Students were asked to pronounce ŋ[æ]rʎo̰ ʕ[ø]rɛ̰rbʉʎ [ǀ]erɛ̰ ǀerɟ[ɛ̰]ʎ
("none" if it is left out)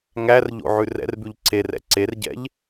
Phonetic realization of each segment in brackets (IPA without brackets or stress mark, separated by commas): æ, ʉ, ǀ, ɛ̰